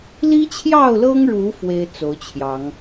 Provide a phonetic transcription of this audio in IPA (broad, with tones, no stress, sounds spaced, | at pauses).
l i˦ t͡ɕʰ j ɑ˥˨ ʊ̯ l ɤ˦ ŋ ɻ u˨˦ f w e˦ ɪ̯ t͡s o˨˦ ʊ̯ t͡ɕʰ j ɑ˨˦ ŋ